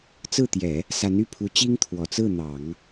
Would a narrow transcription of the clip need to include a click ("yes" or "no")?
no